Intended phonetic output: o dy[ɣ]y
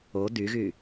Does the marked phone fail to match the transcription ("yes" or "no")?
no